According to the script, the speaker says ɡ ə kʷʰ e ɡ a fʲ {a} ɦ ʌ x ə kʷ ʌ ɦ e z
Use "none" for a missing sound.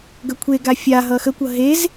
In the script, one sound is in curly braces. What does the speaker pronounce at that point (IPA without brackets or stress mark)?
a